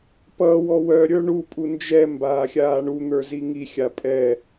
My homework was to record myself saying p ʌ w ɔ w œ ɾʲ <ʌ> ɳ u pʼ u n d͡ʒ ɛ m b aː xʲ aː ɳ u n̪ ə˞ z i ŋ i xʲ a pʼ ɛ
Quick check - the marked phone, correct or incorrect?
incorrect